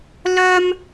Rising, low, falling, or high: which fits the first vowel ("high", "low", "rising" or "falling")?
high